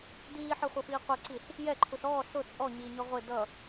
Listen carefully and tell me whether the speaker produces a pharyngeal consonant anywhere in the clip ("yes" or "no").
yes